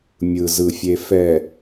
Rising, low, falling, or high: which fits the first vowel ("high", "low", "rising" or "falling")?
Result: low